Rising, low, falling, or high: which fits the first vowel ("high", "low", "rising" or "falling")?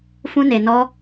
high